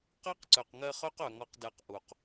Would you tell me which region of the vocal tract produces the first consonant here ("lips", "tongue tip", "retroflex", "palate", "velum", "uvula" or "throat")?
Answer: uvula